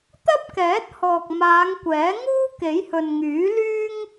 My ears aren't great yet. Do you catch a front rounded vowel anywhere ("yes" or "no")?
yes